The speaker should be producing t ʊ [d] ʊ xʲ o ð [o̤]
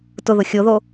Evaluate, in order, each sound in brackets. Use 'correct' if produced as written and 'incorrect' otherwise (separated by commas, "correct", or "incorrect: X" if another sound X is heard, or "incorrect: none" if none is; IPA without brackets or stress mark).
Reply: incorrect: ð, incorrect: o